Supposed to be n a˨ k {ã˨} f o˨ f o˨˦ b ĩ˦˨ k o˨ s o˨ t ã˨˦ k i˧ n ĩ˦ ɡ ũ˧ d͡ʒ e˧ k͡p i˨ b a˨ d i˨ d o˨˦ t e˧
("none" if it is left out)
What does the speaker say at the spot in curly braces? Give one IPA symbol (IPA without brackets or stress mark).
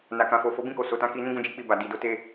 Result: ã˨